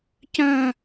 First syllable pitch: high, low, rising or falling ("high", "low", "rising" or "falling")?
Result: high